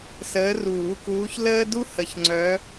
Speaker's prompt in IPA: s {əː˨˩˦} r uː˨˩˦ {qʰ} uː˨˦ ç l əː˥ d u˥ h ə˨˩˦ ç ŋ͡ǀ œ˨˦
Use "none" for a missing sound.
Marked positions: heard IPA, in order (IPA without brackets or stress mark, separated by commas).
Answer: əː˨˦, k